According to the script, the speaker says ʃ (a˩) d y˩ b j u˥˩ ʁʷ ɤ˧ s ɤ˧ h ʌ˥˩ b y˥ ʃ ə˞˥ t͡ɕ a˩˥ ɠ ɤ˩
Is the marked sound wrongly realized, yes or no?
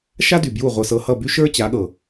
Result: yes